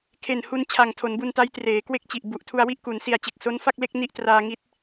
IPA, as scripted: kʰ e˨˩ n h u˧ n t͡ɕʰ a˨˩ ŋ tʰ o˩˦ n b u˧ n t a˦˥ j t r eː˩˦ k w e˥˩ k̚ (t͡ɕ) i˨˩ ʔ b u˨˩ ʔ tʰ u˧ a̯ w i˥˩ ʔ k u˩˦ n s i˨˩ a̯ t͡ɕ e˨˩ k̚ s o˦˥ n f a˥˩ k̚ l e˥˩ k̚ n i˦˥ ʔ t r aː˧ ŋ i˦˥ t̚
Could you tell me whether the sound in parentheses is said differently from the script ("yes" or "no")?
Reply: no